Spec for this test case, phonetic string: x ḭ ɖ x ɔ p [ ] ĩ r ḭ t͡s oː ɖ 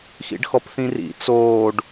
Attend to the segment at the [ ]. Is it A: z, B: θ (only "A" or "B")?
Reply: B